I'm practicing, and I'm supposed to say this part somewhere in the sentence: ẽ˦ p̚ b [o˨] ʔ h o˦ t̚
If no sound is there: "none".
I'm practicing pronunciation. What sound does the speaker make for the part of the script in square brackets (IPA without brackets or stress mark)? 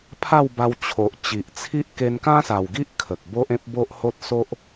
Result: o˦